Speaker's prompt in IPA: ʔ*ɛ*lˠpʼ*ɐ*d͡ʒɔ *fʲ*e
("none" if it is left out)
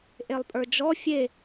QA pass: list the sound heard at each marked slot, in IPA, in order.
e, ə˞, fʲ

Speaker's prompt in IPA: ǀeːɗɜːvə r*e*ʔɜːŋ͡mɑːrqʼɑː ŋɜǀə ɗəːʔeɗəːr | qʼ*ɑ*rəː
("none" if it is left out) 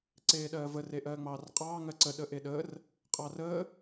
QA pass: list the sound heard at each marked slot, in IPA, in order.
e, ɑ

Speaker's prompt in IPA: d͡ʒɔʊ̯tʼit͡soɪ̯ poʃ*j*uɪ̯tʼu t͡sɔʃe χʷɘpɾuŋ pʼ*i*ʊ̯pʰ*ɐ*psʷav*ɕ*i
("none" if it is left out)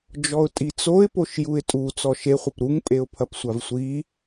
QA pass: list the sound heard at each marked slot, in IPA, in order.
j, e, ɐ, sʷ

